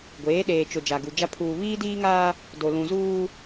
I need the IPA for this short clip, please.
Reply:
ɡʷeː˨˦ɗeː˨t͡ʃʊ˨ d͡ʒa˨ɡu˨d͡ʒa˦ pʰuː˨βiː˦diː˦ŋaː˦ | do˨lũ˨zuː˦

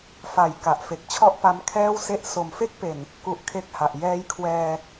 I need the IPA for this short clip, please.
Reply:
fa˩˦j ka˨˩ʔfe˨˩k̚t͡ɕʰɔ˥˩ʔ pa˦˥mkʰɛː˥˩wse˥˩ʔ so˨˩mfe˥˩k̚pe˨˩n | ku˦˥ʔkʰe˥˩k̚ha˨˩ʔ jɛː˦˥jkʰwɛː˧

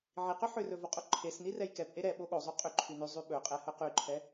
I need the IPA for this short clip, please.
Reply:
ʕiqʏ ħʏrɵ voqʼoǃʰesni rɛjkɛpʔe ɾɛ ɓoɠozˤy qʼʏ ǃʰynyzˤy ɓɵqʼɛ hɵqyǃʰɛ

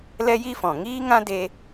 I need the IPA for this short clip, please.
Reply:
lɛ˦ji˦fɔ̃˨ ŋiː˦ŋã˦ de˦

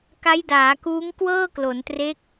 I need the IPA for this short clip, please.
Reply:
ka˦˥jdaː˩˦kuː˦˥ŋ kwɤː˥˩klo˩˦ntre˦˥k̚

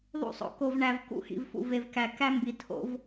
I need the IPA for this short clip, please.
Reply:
ðˤṵ˦sˤo̰˦ ko˨vɳæ˨v kṵ˦xḭ˨vfṵ˨ ve˨vkæ˨ kæ˦mbi˨ tʰo̰˦v

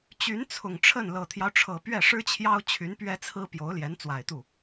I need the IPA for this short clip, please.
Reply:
t͡ɕy˧˥nt͡sʰʊ˨˩ŋʈ͡ʂʰə˥˩n lɤ˨˩t̪ʰjɑ˦ʊ̯ʈ͡ʂʰɤ˨˩ pɥɛ˥˩ʂɻ̩˥t͡ɕʰjɑ˥ʊ̯ t͡ɕʰy˧˥npɥɛ˥t͡sʰɹ̩˥ pjo˧˥ʊ̯ljɛ˧˥n t͡swa˨˩ɪ̯t̪u˥˩

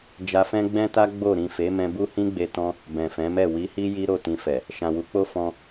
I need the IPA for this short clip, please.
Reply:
d͡ʒa˧fɛ̃˦ ɡ͡bɛ̃˦ta˦ ɡ͡bo˦˨ ɾĩ˨ fe˨˦mɛ̃˧bu˦ hĩ˦ɡ͡be˧tɔ̃˧ | bɛ̃˨fɛ̃˨˦mɛ˦˨ wi˨˦hi˦ ji˦ɾo˦˨ tĩ˧fɛ˨ | ʃã˨wu˨˦k͡po˦ fɔ̃˧

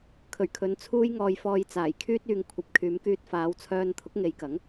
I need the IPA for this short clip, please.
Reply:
kʰɵ˨˩ɥkʰɵ˨˧n t͡sʰuː˥j ŋɔː˧j fɔː˧jt͡saː˨˩jkʰyː˥t̚ yː˨ŋkʷʰɐ˨p̚kʰyː˨˧mkyː˧t̚ faː˨˧wt͡sʰœː˧n t̪ʰʊ˨˥k̚ŋe˨˧jkɐ˨˥ŋ

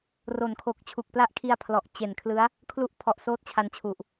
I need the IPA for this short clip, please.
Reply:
ro˩˦nkʰo˨˩k̚ t͡ɕʰu˨˩k̚pla˦˥ʔkʰi˧a̯ pʰlɔ˨˩ʔt͡ɕe˨˩nkʰlɯ˦˥a̯ | kʰlu˦˥ʔpʰɔ˨˩ʔ soː˦˥t̚t͡ɕʰa˧nt͡ɕʰu˨˩ʔ

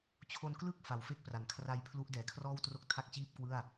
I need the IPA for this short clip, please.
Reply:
t͡ɕʰo˧nklɯ˥˩k̚ fa˩˦wfe˦˥k̚pra˩˦n kʰra˧jpʰlu˦˥ʔdɛː˨˩kʰrɔː˥˩w tro˥˩k̚tʰa˥˩k̚t͡ɕiː˥˩p̚kwɯ˥˩a̯

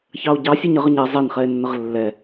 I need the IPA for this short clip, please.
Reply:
çɑo̯ɟɑsʲɛɲ əʁ əɲɛ zˤɛnχɛe̯nːəʁ lːɛ

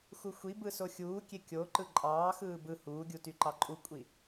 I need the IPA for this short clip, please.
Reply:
xuxʷibɯ soxʲuːkʲe kʲo ǃɯǃʼɑːxɯː bɯ huːɡʲu tyǃɑǃʼukʷʼi

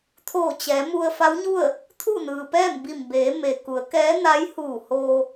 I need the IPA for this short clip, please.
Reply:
t̪ʰoː˧˩t͡ɕɛː˩˧mu˧ə̯ fa˧˥wɲu˥˨ə̯ | t̪ʰu˥˨nɯː˩pɛː˥˨m bi˧˩mbeː˩˧ me˩ku˩˧ə̯kɛː˧˥na˧˥j huː˧˩hoː˧

